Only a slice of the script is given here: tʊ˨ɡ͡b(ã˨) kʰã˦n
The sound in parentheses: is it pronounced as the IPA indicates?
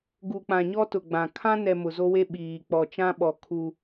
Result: yes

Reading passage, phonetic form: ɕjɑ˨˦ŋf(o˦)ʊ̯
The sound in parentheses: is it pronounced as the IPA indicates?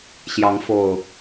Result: no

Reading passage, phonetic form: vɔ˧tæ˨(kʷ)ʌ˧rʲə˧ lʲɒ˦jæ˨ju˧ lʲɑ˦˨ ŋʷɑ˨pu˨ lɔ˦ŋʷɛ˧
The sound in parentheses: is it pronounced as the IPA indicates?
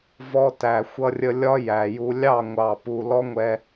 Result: no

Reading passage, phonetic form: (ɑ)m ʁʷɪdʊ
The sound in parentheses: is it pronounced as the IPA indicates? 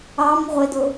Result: yes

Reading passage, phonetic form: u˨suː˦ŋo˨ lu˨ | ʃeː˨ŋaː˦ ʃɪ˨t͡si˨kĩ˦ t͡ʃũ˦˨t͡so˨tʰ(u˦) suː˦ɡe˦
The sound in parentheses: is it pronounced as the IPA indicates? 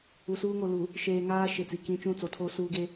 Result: no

